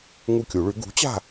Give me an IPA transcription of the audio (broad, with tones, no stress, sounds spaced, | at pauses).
ŋ u˦˨ kʲ u˨˩˦ ɭ ʉ˩˥ ɡ ṳ˩˥ t͡ɕ a̤˦˨